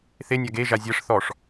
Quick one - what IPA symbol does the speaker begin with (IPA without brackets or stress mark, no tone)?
θ